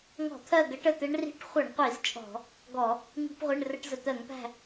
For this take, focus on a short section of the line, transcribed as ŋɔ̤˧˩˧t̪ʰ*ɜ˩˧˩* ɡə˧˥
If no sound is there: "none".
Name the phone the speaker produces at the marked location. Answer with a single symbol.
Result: ɜ˦˨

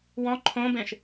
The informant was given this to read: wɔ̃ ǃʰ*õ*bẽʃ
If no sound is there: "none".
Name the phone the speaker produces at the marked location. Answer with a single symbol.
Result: õ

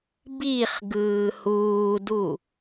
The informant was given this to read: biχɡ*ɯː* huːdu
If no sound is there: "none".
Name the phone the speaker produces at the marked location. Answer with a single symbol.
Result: ɯː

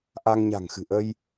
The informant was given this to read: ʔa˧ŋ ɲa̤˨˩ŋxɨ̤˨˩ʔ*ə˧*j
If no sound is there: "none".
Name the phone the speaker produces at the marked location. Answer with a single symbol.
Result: ə˧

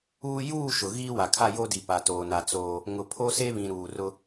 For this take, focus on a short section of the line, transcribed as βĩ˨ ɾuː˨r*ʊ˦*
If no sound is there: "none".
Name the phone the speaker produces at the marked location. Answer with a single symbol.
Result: ʊ˦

